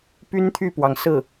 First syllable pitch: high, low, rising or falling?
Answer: high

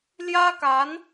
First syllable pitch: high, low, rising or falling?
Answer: high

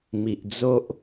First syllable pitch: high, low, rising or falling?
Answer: low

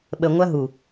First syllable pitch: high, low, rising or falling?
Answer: low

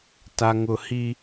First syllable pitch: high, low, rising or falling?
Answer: low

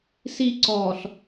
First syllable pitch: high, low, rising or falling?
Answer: high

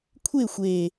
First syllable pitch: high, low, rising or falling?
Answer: falling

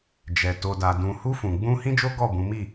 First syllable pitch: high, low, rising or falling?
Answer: low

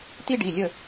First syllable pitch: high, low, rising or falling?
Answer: high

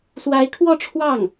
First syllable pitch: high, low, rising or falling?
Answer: rising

